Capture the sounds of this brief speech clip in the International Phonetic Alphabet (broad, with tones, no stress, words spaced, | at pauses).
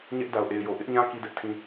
ɲɛ˦ʔda˨ʊ̯ʔe˨ɪ̯jo˨ ʔɪ˦ʔɲã˦ ki˦dɛ˦ʔtʰĩ˦